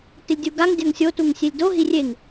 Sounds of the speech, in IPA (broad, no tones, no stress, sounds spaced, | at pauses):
t ɪ lʲ dʲ u ɡ a ŋ dʲ a ŋ sʲ o t u ŋ sʲ e lʲ d o ɦ i rʲ e ŋ